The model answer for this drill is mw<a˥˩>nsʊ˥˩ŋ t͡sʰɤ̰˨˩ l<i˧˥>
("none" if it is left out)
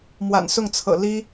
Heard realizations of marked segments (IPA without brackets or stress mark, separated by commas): a̰˨˩, i˥